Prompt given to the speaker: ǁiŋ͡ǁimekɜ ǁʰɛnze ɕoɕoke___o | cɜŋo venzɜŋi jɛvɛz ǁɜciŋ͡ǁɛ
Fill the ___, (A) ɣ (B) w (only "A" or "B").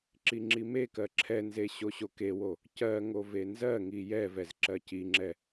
B